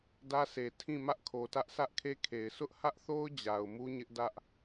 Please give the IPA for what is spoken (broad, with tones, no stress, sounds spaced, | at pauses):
d ä˦ s e˨ tʰ ĩ˦˨ m ä˦ ʔ kʰ o˨ t ä˦ ʔ sʰ ä˦ ʔ kʰ e˦ kʰ e˨ ɪ̯ sʰ ʊ˦ ʔ h ä˦ ʔ θ o˦ ʊ̯ d͡ʑ a˨ ʊ̯ m u˦ ɲ ɪ˦ ʔ d ä˦ ʔ